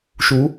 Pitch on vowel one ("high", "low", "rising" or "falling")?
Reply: rising